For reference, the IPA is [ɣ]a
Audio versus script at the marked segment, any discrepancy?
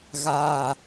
no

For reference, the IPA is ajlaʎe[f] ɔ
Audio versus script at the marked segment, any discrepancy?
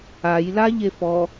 no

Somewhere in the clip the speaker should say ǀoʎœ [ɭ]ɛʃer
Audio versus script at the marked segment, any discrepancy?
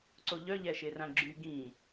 yes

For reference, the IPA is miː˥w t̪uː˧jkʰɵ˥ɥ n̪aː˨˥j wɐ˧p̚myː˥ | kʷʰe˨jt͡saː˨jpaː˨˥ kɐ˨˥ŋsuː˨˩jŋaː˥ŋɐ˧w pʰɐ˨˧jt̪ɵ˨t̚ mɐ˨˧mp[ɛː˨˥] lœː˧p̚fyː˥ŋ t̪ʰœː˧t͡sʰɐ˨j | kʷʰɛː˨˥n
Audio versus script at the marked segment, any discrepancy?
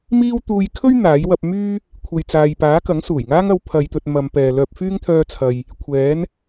yes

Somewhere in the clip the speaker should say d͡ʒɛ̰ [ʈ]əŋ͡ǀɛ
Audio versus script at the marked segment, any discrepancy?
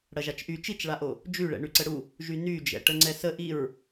no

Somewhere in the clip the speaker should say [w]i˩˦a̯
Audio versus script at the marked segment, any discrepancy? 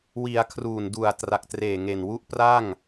no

